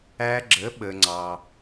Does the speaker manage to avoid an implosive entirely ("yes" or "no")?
no